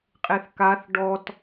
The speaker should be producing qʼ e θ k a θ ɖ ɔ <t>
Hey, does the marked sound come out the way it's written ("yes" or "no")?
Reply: yes